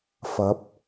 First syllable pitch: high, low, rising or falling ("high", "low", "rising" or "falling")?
rising